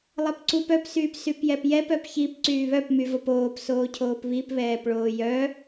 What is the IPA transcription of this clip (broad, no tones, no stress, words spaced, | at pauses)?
lˠɛpǀup œpsyːp sypjɛpjɛpœp çip ǀyːβœp myvopoːp soːcʰoːpβip βɛːpɭoːjœ